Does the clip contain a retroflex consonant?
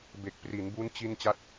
no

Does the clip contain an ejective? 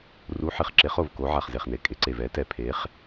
yes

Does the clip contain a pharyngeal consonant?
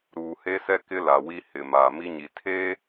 no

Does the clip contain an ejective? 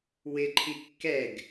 no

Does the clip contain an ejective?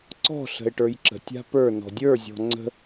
no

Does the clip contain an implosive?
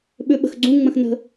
yes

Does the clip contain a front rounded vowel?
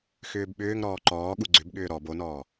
yes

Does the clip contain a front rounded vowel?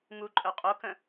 yes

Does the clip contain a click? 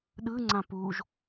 yes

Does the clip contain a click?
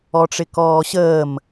no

